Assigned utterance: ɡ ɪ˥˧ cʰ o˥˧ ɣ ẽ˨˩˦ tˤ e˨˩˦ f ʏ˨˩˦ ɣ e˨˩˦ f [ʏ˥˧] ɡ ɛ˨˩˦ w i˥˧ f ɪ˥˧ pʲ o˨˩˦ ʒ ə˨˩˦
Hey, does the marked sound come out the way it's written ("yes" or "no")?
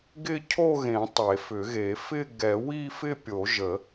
no